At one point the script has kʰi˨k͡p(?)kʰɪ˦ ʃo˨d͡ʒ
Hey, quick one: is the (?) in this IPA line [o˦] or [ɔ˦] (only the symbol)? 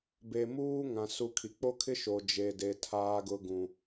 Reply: o˦